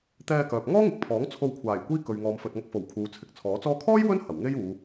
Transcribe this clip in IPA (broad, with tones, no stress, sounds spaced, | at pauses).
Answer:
t̪ ɛː˧ k œː˨ p̚ ŋ ɔː˥ ŋ ɪ˨ k̚ pʰ ɔː˨˥ ŋ t͡sʰ o˧ w kʷʰ aː˨˩ j kʷ iː˥ k ɵ˨ ɥ ŋ ɔː˨˧ m f ɵ˨ t̚ ŋ ɐ˧ k̚ f o˨˩ w kʰ uː˨ t͡sʰ ɪ˨ k̚ t͡sʰ ɔː˨˥ t͡s ɔː˧ kʰ ɔː˥ j w ɵ˥ n h ɐ˨˩ w ŋ e˥ j uː˨˧